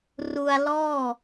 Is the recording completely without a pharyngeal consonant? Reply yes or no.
yes